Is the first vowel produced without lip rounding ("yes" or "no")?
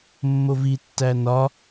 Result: no